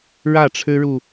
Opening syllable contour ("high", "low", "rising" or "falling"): falling